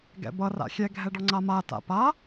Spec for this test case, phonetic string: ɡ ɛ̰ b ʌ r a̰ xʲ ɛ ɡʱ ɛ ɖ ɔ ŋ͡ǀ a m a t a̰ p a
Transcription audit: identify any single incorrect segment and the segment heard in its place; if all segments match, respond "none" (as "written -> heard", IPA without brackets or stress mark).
none